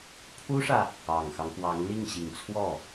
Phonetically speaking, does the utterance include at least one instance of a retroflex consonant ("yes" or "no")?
yes